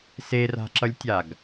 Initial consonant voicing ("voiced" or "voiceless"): voiceless